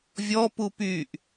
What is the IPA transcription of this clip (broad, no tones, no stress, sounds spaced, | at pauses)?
vʲ ɔ p u p y ʔ